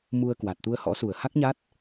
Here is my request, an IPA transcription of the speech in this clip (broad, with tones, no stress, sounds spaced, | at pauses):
m u˧ ə̯ k w a˨˩ t̚ t̪ u˧ ə̯ h ɔ̰˧˥ s u˧˩ ə̯ h a˦˥ k̚ ɲ a˦˥ t̚